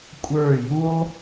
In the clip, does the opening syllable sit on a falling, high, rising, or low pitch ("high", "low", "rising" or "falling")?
falling